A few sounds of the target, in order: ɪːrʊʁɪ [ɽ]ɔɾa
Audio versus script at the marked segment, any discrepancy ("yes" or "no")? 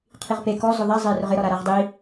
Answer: yes